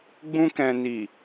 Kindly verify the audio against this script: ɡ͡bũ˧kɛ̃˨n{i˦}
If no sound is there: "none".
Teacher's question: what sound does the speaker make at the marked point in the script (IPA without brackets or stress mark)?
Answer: i˨